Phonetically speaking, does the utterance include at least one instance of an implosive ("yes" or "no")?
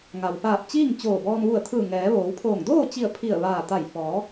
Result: no